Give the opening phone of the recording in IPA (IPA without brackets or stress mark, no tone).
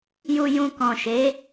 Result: j